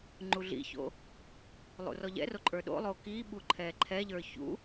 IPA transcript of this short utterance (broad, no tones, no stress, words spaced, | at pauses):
ŋ͡ǃuɮḭço̰ | lˠṵrɔʎɛ̰ro ǃʼə˞ɗo̰lˠo kiɓu ǃʰɛǃʰɛʎə˞ çṵ